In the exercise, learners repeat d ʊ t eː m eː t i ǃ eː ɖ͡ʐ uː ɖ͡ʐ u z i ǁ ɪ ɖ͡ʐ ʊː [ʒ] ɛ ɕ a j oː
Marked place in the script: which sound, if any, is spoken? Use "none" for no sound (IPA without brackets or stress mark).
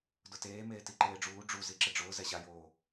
z